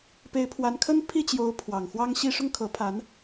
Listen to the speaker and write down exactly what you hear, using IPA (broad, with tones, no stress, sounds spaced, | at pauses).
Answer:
p e˧˥ ɪ̯ pʰ w a˧˥ n kʰ ə˥ n pʰ i˥˩ t͡ɕ j o˧˥ ʊ̯ pʰ w ɑ˨˩ ŋ x w ɑ˥ ŋ ɕ i˥ ʂ ʊ˥˩ ŋ kʰ ɤ˧˥ pʰ a˧˥ n